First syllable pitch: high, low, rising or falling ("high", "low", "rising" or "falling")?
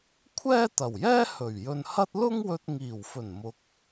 high